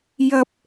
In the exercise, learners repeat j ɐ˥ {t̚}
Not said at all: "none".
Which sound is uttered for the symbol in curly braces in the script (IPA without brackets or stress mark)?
p̚